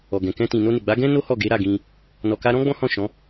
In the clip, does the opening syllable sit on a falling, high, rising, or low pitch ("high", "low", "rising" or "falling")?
low